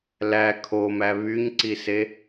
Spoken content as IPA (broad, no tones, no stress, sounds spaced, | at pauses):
l æ kʰ o m æ β y ɲ ǀ i s e